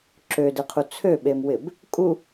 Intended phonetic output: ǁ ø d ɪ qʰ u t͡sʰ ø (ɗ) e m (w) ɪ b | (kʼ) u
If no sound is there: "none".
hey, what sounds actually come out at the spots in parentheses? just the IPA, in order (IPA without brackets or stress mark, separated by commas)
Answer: ɓ, w, kʼ